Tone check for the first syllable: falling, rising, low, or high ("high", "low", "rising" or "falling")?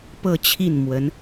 falling